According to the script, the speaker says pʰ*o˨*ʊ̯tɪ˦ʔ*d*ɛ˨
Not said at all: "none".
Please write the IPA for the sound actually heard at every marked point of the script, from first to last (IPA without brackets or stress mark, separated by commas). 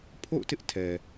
o̰˦˨, tʰ